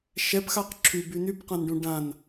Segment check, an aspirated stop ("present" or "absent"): present